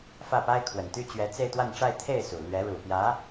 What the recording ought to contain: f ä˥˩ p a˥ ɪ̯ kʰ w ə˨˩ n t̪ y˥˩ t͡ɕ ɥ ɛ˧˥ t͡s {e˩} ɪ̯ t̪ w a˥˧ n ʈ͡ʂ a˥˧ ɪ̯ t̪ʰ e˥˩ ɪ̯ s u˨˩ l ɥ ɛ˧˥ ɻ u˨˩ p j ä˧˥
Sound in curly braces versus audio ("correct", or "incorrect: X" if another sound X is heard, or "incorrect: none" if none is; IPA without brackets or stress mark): incorrect: e˥˧